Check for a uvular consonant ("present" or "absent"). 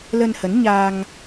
absent